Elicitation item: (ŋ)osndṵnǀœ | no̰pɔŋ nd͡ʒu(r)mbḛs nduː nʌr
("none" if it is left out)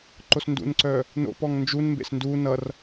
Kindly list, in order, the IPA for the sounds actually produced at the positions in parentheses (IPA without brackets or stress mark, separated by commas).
ǃ, n